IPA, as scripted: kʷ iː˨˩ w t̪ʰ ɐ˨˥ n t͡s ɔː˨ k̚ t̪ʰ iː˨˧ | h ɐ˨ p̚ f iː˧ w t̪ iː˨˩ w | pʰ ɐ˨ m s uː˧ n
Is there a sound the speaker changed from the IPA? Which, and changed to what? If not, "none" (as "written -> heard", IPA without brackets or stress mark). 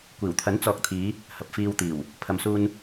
none